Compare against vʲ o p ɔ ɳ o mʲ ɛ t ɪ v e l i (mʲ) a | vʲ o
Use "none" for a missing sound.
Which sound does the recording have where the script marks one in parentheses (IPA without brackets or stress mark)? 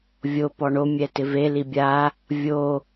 bʲ